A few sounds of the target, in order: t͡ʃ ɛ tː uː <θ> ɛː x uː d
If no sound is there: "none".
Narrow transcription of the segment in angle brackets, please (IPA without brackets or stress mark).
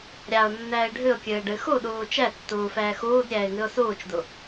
f